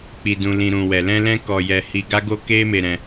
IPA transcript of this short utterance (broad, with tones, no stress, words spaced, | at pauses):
k͡pi˧dũ˧lĩ˧ ɾũ˨wɛ˨lɛ̃˧lɛ̃˧ kɔ˧jɛ˧ hi˧ɡa˦ɡo˦ ke˦me˧ ɾɛ̃˧